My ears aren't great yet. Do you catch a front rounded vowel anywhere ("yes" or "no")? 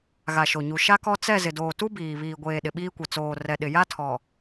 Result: no